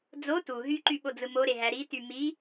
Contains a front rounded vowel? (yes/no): yes